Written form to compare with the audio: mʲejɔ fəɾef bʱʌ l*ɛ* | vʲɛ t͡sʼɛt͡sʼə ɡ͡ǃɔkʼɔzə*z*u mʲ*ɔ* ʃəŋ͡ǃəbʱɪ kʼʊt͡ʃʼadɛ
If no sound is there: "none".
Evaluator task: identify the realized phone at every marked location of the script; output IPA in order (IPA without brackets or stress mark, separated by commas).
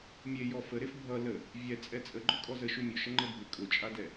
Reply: ə, ʃ, ʊ